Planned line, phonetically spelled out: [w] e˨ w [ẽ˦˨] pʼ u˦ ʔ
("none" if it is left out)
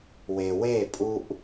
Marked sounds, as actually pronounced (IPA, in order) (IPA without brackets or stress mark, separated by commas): w, e˦˨